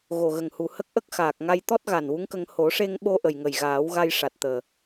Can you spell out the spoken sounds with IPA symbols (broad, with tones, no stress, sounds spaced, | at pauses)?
ɣ o˨˩ ɣ ə˨˩ ŋ h u˨˩ h ə˦˥ k̚ ʔ ə˦˥ k̚ x aː˨˩ k̚ ŋ a˧ j t̪ ɔ˦˥ t̚ ɣ a˨˩ n w u˧˥ ŋ k ə˧ ŋ h o˨˩˦ ʂ e˧ ŋ ɓ o˧ ʔ ə˨˩ j ŋ ə˨˩ j ɣ aː˨˩˦ w ɣ a˧ j ʂ a˨˩ t̚ t̪ əː˨˩